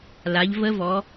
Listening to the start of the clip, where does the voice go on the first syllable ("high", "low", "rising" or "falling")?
rising